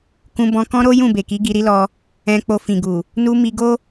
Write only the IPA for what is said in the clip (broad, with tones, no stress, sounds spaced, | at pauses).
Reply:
k ũ˧ b ɔ̃˧ k ɔ̃˦ ɾ o˦ j ũ˦˨ b e˨ k i˨˦ ɡ i˧ ɾ i˦ l ɔ˧ | ɛ̃˧ k͡p o˧ f ĩ˨ ɡ u˨ | n u˧ m i˧ ɡ o˦